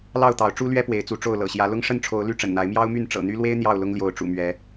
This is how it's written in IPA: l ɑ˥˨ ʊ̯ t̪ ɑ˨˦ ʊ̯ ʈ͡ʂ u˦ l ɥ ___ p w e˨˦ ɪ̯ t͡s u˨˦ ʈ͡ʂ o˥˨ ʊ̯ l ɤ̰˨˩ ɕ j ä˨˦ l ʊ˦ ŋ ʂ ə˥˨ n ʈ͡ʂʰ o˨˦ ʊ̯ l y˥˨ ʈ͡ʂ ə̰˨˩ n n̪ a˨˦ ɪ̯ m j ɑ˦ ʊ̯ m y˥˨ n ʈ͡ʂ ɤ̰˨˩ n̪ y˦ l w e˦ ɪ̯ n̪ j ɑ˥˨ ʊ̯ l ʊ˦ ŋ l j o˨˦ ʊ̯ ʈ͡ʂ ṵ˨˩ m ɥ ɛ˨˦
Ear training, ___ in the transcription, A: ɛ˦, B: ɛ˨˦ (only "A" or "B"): A